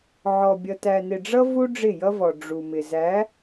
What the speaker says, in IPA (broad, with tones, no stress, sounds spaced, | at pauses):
ʕ ɔ˨ bʲ ʌ˨ t æ˨ n ɪ˨ ɖ͡ʐ ʌ˦ v u˦ ɖ͡ʐ ɪ˦˨ j ʌ˦ v ɔ˨ ɖ͡ʐ u˨ m ɪ˨ z æ˨˦